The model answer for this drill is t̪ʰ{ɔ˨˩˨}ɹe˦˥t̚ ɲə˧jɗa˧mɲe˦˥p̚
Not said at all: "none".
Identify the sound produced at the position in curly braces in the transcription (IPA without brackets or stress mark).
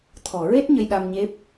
ɔ˨˩˨